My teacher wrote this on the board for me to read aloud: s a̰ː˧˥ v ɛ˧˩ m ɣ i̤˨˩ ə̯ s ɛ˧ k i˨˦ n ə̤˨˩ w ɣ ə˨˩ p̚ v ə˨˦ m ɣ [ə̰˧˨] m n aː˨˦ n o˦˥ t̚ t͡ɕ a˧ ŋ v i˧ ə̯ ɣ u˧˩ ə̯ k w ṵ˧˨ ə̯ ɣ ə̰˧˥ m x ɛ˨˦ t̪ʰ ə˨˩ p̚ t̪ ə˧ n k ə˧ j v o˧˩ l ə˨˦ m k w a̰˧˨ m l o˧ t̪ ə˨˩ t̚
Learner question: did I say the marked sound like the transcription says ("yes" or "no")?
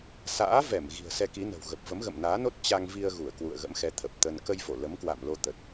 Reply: yes